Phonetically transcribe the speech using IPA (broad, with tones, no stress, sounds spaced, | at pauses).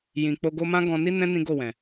j ĩ˨ k͡p o˧ ɡ o˧ m ã˦ ɡ ɔ̃˧ n i˦ n ɛ̃˦ n ĩ˦ ɡ o˦˨ w ɛ̃˨